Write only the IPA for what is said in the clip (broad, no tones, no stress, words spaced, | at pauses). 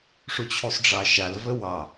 ʂut͡ɕʰusˤɖ͡ʐɑʃal vəwɑ